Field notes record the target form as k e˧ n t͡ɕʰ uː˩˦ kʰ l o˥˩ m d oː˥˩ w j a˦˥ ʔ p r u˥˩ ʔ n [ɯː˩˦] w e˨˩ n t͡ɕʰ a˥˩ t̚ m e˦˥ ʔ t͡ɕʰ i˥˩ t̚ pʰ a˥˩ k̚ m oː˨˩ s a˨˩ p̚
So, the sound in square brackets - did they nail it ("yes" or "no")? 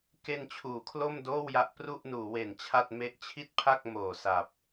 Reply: no